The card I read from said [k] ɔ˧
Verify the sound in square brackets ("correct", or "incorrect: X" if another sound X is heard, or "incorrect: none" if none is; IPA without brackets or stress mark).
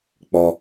incorrect: k͡p